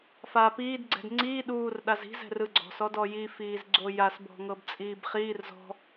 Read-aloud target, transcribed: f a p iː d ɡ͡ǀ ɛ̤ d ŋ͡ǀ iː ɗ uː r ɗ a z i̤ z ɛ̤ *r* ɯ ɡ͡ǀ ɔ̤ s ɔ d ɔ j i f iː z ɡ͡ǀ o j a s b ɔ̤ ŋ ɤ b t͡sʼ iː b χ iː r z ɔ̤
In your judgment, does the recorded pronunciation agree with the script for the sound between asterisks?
yes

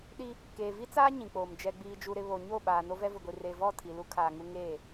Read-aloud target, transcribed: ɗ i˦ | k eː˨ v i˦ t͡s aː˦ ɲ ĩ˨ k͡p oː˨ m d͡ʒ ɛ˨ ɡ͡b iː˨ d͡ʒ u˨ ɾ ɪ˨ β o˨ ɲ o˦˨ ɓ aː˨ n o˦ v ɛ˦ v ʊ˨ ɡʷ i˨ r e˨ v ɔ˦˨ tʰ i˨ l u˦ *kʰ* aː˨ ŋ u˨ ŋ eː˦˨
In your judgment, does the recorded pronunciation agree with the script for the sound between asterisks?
yes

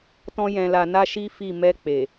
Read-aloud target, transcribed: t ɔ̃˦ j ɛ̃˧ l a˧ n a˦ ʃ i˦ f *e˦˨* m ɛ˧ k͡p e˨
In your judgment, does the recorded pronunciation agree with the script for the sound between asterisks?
no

